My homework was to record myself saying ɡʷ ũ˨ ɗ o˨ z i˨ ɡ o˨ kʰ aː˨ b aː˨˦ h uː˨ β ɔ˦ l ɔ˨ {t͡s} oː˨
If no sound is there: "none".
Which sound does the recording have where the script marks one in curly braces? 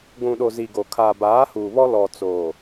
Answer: t͡s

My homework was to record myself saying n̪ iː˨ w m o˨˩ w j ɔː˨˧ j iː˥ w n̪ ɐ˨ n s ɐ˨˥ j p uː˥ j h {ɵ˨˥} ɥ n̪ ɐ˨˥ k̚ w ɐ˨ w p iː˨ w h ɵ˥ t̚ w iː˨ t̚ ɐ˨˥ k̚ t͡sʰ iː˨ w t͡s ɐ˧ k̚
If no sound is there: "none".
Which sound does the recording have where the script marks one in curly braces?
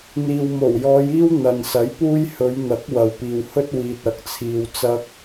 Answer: ɵ˨˧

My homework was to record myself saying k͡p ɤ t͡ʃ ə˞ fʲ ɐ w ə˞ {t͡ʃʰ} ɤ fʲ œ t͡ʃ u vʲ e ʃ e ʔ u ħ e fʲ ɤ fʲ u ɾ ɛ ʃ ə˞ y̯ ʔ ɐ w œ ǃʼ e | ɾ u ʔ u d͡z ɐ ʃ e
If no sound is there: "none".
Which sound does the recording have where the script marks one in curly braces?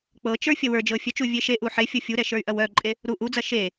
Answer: d͡ʒ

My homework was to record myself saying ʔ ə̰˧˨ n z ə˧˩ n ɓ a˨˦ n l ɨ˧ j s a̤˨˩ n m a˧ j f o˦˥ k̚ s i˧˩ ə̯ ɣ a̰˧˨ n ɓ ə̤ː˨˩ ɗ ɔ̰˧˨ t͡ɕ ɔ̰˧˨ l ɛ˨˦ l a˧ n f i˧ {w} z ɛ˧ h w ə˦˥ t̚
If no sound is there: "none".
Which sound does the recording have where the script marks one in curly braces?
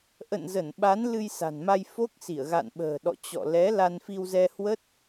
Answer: w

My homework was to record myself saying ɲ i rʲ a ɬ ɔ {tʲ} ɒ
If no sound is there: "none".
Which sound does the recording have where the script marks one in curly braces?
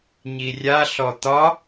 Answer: t̪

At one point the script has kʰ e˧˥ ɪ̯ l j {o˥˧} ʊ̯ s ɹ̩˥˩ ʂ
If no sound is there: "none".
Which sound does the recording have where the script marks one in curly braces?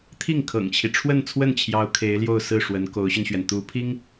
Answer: o˥˧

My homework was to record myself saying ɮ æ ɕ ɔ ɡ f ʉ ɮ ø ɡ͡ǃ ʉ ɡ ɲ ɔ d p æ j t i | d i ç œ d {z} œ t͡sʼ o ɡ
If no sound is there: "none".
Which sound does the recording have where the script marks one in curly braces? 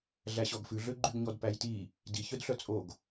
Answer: ɬ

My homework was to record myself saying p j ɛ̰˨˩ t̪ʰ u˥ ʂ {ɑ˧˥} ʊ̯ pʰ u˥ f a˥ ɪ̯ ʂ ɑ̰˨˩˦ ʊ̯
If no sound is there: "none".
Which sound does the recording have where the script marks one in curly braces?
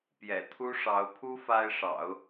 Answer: ɑ˧˥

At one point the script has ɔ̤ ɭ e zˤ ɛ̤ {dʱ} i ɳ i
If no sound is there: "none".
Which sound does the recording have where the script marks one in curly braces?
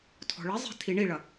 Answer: tʰ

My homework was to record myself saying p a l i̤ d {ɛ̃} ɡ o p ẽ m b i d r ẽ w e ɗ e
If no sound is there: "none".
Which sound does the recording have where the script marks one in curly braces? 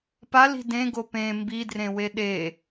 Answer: ẽ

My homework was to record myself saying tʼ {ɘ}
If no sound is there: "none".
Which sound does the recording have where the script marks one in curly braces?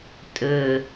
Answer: ɘ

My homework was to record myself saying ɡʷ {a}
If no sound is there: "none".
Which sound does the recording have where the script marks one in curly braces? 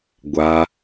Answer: a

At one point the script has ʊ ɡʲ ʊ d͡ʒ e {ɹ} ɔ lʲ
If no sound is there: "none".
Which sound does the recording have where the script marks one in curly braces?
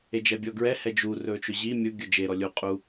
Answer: ɾ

